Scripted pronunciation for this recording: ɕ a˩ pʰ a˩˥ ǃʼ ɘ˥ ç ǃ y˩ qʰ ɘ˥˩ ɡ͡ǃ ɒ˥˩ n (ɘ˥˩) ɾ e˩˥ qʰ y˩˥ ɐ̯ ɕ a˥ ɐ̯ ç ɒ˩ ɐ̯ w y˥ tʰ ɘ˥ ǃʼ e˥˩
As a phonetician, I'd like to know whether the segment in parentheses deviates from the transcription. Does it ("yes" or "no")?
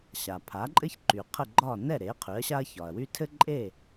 yes